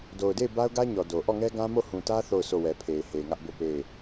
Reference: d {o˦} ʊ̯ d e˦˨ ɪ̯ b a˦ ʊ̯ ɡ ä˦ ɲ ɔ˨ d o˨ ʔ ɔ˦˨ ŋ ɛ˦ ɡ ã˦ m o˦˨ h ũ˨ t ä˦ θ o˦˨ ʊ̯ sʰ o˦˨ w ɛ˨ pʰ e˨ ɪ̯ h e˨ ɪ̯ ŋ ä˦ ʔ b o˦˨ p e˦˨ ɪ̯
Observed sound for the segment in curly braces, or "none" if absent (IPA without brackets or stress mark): o˨